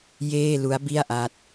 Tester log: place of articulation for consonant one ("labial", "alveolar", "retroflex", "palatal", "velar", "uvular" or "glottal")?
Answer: palatal